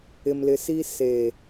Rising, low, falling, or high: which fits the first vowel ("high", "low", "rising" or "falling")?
low